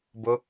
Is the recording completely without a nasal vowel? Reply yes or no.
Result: yes